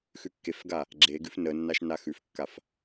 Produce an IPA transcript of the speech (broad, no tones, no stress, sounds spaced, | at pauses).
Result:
x ʉ kː e f ɡ a | ɡ͡ǁ e ɡ ʉ f n ə nː a ʃ n a x ʉ f kː a f